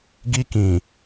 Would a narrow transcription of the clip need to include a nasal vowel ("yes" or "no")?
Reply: yes